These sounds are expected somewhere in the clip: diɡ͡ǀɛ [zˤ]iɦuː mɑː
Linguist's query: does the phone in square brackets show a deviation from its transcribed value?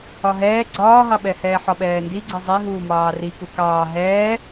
no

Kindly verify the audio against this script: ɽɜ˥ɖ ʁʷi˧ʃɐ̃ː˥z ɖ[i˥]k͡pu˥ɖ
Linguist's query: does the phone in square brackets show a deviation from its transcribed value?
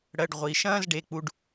yes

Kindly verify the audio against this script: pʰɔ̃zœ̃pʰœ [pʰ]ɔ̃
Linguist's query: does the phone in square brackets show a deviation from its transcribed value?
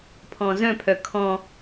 yes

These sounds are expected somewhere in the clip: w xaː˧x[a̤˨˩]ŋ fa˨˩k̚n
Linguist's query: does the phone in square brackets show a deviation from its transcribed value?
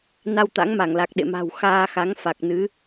yes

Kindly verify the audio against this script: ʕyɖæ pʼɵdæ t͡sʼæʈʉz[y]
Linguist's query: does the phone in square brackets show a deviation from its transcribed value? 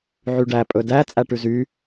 no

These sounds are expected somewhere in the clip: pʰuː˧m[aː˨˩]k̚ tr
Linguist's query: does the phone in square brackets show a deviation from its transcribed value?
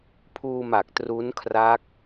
yes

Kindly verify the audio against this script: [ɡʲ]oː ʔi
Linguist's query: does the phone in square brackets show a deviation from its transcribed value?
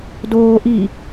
yes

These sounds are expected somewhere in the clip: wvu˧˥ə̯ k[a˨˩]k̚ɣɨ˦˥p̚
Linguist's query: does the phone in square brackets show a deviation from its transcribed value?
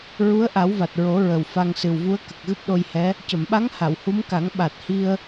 yes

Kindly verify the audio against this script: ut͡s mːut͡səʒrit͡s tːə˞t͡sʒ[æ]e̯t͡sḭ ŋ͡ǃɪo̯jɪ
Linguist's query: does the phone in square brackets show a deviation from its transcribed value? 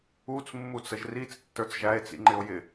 no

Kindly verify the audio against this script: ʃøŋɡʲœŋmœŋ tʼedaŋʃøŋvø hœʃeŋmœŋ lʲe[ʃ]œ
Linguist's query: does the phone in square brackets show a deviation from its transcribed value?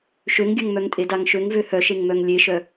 no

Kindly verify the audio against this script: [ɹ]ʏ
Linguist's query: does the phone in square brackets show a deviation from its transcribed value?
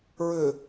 no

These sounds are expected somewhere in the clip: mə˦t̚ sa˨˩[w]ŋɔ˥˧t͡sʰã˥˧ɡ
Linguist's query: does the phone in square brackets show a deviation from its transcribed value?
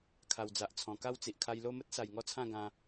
yes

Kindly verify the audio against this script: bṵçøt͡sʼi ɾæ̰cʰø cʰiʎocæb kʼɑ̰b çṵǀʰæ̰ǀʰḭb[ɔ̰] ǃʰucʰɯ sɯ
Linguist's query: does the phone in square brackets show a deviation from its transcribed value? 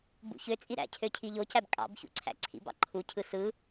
yes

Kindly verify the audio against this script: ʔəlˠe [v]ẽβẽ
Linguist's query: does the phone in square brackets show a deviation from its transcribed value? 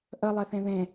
yes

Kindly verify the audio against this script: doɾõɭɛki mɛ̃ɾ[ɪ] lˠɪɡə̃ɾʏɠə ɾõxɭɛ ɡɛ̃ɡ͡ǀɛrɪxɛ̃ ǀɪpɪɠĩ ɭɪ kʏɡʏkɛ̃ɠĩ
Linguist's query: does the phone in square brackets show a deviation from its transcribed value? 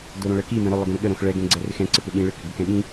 yes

